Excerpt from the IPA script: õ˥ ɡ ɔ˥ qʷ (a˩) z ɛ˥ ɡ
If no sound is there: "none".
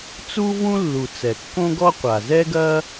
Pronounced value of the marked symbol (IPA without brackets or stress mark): a˩